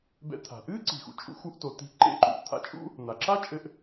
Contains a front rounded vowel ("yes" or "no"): no